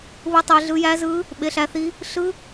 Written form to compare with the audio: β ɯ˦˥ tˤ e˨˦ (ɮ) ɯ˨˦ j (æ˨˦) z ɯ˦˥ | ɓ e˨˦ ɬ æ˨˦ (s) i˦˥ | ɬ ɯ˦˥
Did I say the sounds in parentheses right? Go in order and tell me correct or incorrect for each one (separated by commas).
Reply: correct, incorrect, incorrect